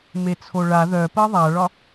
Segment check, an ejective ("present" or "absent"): absent